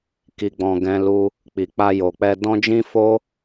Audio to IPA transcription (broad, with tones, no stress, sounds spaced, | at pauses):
k i˨ ɡ͡b ɔ̃˨ ɡ ɛ̃˧ l u˧ | k͡p i˨ k͡p a˧ j o˨ k͡p ɛ˧ d ɔ̃˦ d͡ʒ ĩ˦ f o˦